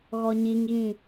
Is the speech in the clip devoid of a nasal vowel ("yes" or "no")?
no